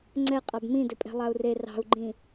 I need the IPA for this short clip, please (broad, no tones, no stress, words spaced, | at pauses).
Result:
ŋ͡ǀɛqʼab mĩdɘpʼɛ̤ lˠau̯re rɑ̤u̯ɡ͡ǃĩ